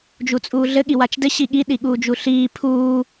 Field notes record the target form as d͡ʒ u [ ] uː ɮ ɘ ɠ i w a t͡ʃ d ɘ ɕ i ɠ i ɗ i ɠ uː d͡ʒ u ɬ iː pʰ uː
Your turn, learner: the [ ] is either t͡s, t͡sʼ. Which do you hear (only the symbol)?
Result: t͡sʼ